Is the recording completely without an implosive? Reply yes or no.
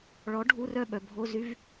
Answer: no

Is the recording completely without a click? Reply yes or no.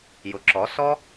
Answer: no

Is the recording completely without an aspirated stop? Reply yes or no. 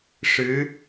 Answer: yes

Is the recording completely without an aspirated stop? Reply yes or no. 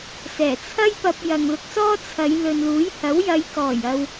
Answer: no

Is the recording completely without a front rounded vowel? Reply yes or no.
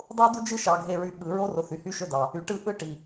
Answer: no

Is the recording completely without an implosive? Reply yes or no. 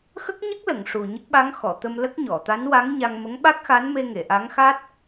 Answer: no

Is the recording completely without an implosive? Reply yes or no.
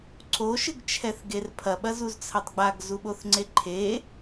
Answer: no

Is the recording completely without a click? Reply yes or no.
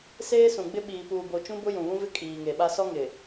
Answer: yes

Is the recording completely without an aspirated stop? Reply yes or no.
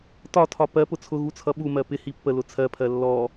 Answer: no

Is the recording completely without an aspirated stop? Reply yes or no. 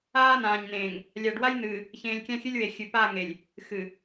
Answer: yes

